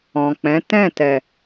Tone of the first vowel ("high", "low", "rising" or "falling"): low